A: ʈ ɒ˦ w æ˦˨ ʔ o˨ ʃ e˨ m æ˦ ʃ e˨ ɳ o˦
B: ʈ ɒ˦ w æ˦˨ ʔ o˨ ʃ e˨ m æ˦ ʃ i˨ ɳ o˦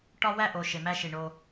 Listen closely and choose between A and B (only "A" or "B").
B